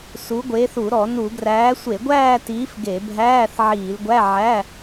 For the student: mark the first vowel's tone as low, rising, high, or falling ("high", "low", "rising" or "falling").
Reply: rising